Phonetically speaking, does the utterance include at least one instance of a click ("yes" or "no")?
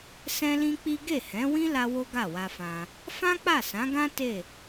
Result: no